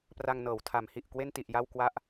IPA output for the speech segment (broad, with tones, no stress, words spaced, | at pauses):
pra˧ŋnɤː˩˦wtʰa˩˦mhi˨˩ʔ kwe˥˩nti˨˩ʔ ja˥˩wkwa˥˩ʔ